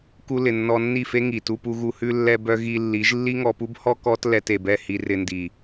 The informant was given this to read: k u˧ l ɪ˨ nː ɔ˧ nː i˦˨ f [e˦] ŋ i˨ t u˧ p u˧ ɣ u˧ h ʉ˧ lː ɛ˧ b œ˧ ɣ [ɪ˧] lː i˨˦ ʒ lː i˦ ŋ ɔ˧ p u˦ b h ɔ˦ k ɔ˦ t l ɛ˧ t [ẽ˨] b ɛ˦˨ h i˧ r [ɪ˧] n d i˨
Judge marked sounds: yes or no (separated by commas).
yes, no, no, yes